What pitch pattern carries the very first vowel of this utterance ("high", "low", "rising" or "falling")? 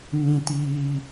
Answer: high